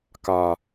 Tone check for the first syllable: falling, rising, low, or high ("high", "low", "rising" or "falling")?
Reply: low